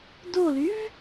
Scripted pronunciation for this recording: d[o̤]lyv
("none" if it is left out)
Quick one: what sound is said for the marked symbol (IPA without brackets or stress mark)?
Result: o